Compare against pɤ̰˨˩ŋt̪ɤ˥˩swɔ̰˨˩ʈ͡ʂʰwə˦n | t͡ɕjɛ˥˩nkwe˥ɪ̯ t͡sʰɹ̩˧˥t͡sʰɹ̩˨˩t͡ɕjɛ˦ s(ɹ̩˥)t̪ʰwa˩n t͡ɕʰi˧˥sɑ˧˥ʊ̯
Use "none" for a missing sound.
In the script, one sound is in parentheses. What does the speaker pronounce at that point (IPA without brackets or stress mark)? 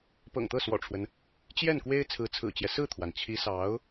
ɹ̩˥˩